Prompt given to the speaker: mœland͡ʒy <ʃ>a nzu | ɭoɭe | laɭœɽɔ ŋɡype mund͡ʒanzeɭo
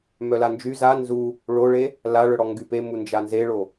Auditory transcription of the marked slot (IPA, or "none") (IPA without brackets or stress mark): z